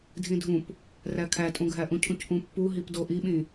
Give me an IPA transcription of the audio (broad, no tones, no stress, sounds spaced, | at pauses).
dʱ ĩ dʱ ũ p | r æ kʰ æ tʼ ũ ɡʱ æ ʔ ũ cʰ ũ c ʔ ũ pː u ɦ i p d o ʔ i ɓ ĩ